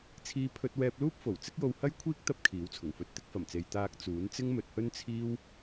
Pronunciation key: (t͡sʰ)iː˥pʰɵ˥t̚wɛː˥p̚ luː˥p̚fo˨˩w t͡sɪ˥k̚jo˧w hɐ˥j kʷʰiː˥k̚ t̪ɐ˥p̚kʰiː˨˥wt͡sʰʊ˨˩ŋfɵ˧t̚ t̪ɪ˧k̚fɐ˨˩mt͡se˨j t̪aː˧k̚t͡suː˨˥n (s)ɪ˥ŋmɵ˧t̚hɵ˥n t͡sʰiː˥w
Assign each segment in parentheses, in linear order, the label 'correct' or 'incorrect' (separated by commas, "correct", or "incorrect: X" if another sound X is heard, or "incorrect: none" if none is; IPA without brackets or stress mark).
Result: correct, incorrect: t͡s